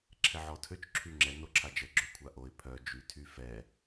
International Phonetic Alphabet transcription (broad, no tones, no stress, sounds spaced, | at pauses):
ǁʰ ɛ ʕ ɔ tʰ ø t͡ʃ ǁʰ y ŋ͡ǁ ɛ n o ǁʰ a d͡ʒ ə ɡ͡ǁ ø kʷʰ a ʔ o ɪ̯ pʰ œ d͡ʒ y tʰ y f ɛ